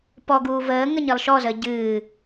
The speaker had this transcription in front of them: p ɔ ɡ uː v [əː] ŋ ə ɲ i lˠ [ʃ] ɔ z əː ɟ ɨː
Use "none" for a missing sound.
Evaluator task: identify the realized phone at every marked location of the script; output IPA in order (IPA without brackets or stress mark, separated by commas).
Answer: əː, ʃ